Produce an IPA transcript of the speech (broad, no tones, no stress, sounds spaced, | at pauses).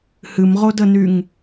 h ɨ m ʁ o d ə n y ŋ